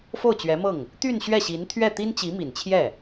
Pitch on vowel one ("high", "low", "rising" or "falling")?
falling